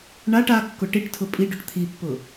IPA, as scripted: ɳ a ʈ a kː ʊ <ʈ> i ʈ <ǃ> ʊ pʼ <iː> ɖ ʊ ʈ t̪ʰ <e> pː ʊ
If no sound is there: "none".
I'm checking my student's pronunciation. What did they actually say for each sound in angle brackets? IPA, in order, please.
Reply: ʈ, tʰ, i, i

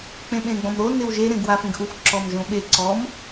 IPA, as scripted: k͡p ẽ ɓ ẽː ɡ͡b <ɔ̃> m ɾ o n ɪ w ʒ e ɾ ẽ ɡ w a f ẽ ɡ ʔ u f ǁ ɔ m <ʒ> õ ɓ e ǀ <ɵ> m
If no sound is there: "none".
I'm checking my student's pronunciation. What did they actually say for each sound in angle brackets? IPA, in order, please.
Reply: ɔ̃, ʒ, ɔ

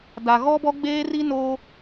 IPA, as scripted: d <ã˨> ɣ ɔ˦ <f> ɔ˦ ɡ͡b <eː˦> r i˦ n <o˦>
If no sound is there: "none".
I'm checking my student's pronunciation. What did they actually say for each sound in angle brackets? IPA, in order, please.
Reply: a˨, b, eː˦, o˦

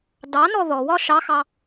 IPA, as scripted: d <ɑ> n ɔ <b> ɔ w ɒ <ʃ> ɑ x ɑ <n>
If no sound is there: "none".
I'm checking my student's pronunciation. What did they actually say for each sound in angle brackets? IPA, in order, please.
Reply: ɑ, ð, ʃ, none

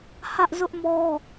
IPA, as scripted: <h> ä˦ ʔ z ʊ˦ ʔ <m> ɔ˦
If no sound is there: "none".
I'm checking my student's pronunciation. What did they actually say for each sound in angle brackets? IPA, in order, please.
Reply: h, m

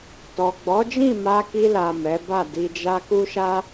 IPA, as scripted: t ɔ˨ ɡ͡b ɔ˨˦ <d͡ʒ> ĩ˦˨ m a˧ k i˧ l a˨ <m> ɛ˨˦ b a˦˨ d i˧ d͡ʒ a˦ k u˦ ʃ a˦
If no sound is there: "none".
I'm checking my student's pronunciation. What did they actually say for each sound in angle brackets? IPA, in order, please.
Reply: d͡ʒ, m

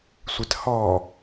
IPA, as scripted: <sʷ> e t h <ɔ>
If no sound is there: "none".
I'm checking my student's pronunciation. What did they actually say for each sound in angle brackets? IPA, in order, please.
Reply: sʷ, ɔ

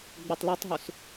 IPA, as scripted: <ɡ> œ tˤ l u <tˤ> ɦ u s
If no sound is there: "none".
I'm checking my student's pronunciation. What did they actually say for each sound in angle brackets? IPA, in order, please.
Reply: ɡ͡b, tˤ

